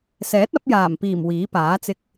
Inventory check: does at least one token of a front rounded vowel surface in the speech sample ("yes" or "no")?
no